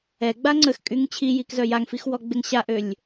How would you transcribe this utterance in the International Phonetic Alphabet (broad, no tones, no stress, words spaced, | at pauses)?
ɛɡ͡ba ŋ͡ǀəxkʼyŋ t͡ɕʰijikzœ jaŋfixwɔɡ͡beŋ ɕaʔølʲ